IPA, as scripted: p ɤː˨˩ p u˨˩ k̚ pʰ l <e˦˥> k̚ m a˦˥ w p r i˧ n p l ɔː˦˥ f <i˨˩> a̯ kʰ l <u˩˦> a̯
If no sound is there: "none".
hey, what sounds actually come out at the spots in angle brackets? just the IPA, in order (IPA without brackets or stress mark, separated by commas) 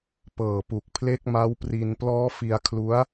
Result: e˦˥, i˧, u˦˥